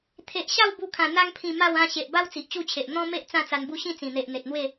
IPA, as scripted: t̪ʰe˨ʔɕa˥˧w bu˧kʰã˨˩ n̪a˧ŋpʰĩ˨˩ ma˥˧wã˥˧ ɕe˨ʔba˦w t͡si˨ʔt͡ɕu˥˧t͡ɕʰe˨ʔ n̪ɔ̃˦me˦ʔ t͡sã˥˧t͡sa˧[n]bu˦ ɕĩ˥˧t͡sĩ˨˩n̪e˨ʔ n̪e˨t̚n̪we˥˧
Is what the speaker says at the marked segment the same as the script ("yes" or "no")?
yes